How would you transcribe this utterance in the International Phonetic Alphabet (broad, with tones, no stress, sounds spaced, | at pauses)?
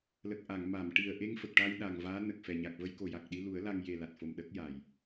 l ə˨˩ k̚ ʔ a˨˩˨ ŋ m a˨˩˨ m ʈ i˨˩ ə̯ ʔ e˧ ŋ f ə˨˩ k̚ ʈ a˧ j ɗ a˨˩ ŋ v aː˧˥ n ə˨˩ k̚ f ɛ˨˩ ɲ a˨˩ k̚ v ə˧ j k o˨˩ j a˨˩ k̚ ɗ i˧ l u˨˩˦ ə̯ l a˧ ŋ j e˨˩ l a˨˩ t̚ f o˨˩ m ɗ ə˦˥ k̚ j a˨˩˨ j